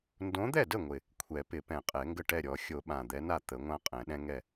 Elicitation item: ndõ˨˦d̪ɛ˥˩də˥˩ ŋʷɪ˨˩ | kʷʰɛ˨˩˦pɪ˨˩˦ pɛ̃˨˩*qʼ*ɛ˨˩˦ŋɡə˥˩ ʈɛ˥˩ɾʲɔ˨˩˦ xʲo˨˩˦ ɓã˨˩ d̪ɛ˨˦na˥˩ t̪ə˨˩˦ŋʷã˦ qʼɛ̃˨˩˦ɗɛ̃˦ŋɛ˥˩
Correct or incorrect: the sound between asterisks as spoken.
correct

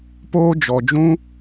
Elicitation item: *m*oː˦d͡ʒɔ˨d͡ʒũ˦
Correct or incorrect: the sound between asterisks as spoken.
incorrect: p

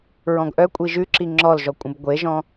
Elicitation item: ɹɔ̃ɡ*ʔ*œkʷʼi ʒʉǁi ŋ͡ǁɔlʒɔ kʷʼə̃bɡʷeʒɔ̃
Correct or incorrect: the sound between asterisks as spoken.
correct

